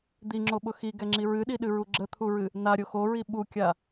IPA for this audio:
d̪ i ŋ͡ǁ o ɓ ʊ x i ɡ ɛ ŋ͡ǁ i ɹ ɨ ɗ i ɗ ɨ ɹ u ɡ͡ǁ ə t̪ʰ u ɹ ɨ | n a ɾʲ o x o ɹ i ɓ u kʲ a

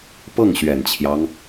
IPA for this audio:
p ɤ˥˩ ŋ ɕ ɥ ɛ˨˩ n t͡ɕʰ j ɑ˦ ŋ

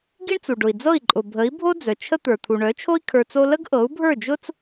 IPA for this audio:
ɡ i˥ ɳ t͡s u˩ ɖ ʊ˩ i̯ d͡z ɤ˥˩ i̯ ǃʼ ʊ˩ bʱ ə˩˥ i̯ bʱ o˥ d͡z œ˩ t͡ʃʰ ə˥ t̪ ə˞˩ t̪ʰ u˩ ɳ œ˩˥ t͡ʃʰ o˥ i̯ kʰ ə˞˧ t͡s o˥ l ə˥ ɡ ʔ ɤ˩˥ u̯ bʱ ə˞˥˩ d͡ʒ ʊ˥ t͡s

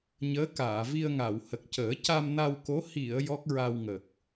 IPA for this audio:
ɲ əː˧˥ k aː˨˩˨ v i˧ ə̯ ŋ a˨˩˨ w h ə˨˩ k̚ c əː˨˩˦ c a˧ m n a˧ w k o˧˥ h i˨˩˨ ə̯ j ɔ˦˥ k̚ ɹ a˧ w ŋ ə˨˩ k̚

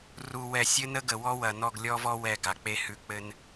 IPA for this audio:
r u˨ w ɛ˨ sʲ ɘ˦ n ə˦ ɡ ə˨ w ɔ˦ w ɐ˨ n ɔ˦˨ ɡ lʲ ɔ˦ v ɔ˦ w ɛ˦˨ ɡ a˨ k͡p e˦ h ʉ˨ k͡p ɘ˦ n

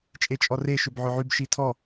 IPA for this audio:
t͡ʃʼ e t͡ʃʼ ɔ r e ʃ ʏ b ʕ ʏ ʕ y b ʃ i tʰ ɔ

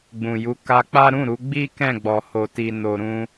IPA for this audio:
ɡ͡b ũ˨ j u˨˦ k a˧ k͡p a˦ ɾ ũ˦˨ ɾ u˨˦ ɡ͡b i˦ k ɛ̃˦˨ ɡ͡b ɔ˨ h o˨ t i˨ n o˨ ɾ ũ˧

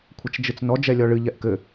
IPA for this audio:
kʷʰ ɐ t͡ʃ d͡ʒ ɨ t͡s n ɔ d͡ʒ ɛ lʲ ɔ ɭ ɨ ʎ ɛ ʔ k ɘ

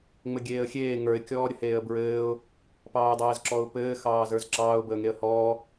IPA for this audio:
ŋ͡m ɘ ɡʲ eː ə̯ xʲ eː ŋ ə˞ ɪ̯ kʲ ɔː ɾʲ ə h eː ə̯ b ɹ ɘː ʊ̯ | p ɑː ɪ̯ dˤ ɘː z ǁ ɔ ʊ̯ p ɘː x ɑː z ə˞ z ǁ ɑː ʊ̯ b əː ŋ e ə̯ h ɔː

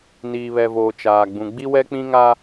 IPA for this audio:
n iː˨ β ɛ˨ v oː˨ t͡ʃ aː˨ ɡ͡b ũ˨ ɡ͡b i˦ w ɛ˦ k͡p ĩ˦ ŋ a˦

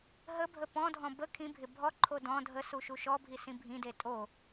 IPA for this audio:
ɦ ə bʱ ə p ɔ̃ dʱ ɔ̃ b ə kʰ ĩ bʱ ɪ bʱ ɔ ǃʰ o d ɔ̃ dʱ ə s u ʃ u ʃ ɔ bʱ i s ĩ bʱ ĩ d e tʼ o

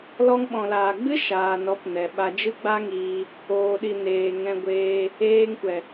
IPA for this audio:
l ɔ˧ ŋ ɓ ɔ̃˨ l aː˨ ɡ͡b ɨ˦ ʃ aː˨ n ɔ˨˦ p n ɛ˨ ɓ a˧ d͡ʒ ɨ˦ ɡ͡b a˦ ŋ iː˧ | oː˨ ɗ i˨ n eː˨ ŋ ɛ̃˧ ɡʷ eː˧ | eː˧ ŋ kʷ ɛ˨

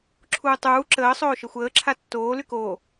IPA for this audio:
ǁʰ uː tˤ uː ǁ əː sˤ oː ʃ ə xʷ əː ǁʰ a tː oː l y k oː

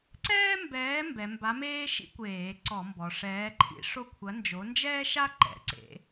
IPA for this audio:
ǀ ɛː˥ m b ɛː˨˥ m b ɛ˩˧ m b a˨˥ m eː˥ ʃ ḭ˥ kʷ eː˧˩˧ ǀ ɔ˧˩˧ m b ɔ˩˧ ʂ ɛː˨˥ ǃʰ ḭ˨˥ ʂ o˥ kʷʰ ɐ˨˥ n d͡ʒ o˨˥ n d͡ʒ ɛː˥ ʃ a˥ ǃ ɛ̰˩˧ ǀ ḛ˨˥

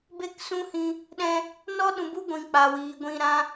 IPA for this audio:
b e˦ k s ũ˦ h ĩ˧ | ɗ ɛ̃˧ | n ɔ˦ ɗ ũ˨ b u˦ ɡʷ ĩ˨ k͡p a˨ w iː˨ ɡʷ ĩ˧ ɾ ã˦

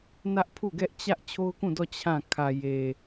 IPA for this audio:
n ä˦ ʔ pʰ u˦˨ ɡ ɛ˦ ʔ t͡ɕ ä˦ ʔ t͡ɕʰ o˦ ʊ̯ k ũ˦˨ d ɔ˦˨ t͡ɕʰ ã˦˨ kʰ ä˨ j e˨

